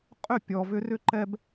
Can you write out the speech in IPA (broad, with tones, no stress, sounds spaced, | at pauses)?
qʼ ʏ˦˨ pʲ ɔ˨ v ʏ˧ r ʏ˦ ǃ ɛ˦ b